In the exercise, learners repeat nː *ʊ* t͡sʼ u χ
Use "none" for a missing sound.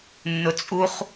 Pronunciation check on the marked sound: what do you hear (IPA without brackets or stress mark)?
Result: ʊ